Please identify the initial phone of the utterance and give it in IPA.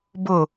b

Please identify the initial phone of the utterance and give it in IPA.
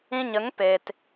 ĩ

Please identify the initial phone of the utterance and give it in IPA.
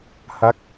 h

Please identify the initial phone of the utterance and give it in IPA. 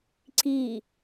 ǀ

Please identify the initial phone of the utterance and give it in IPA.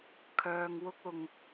kʰ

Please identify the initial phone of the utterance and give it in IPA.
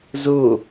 z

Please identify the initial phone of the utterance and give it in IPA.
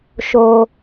ʃ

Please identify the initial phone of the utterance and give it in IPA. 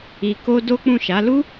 i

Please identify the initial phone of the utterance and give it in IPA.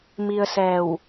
m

